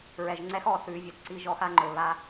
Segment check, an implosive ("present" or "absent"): absent